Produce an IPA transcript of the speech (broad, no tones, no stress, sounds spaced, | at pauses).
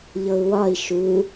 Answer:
ʎ ɤ u̯ w ɒ i̯ ʃ u